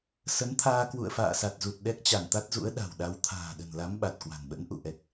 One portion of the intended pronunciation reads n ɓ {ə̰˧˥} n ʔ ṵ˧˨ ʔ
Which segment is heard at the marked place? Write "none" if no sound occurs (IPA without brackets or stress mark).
ə̰˧˥